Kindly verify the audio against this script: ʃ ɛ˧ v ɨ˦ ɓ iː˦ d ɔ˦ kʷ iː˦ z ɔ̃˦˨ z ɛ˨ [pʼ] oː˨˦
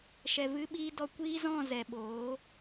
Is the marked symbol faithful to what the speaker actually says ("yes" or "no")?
no